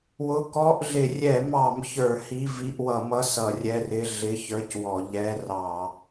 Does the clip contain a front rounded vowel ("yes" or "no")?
no